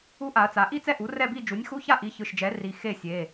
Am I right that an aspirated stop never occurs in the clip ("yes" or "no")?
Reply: yes